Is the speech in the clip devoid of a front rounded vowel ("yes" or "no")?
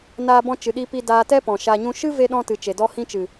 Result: yes